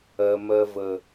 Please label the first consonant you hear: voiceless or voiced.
voiced